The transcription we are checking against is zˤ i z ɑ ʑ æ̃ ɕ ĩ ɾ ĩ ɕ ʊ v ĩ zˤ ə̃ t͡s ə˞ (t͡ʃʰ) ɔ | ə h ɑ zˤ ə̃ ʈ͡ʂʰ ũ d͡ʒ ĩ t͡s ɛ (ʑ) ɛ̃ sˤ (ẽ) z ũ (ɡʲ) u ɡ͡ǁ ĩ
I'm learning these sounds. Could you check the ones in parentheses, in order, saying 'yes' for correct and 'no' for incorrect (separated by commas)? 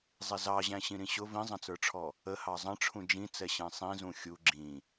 no, no, no, no